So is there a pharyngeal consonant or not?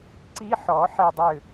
yes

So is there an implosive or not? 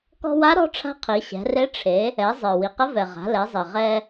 no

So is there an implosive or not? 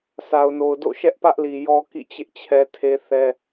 no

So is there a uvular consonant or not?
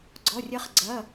yes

